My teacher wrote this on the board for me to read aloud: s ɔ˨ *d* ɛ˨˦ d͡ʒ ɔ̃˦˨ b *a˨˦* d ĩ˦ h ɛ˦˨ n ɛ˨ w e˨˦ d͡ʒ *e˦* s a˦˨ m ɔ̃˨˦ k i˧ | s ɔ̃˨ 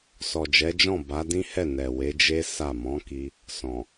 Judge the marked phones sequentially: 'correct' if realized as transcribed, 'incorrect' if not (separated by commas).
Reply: incorrect, correct, correct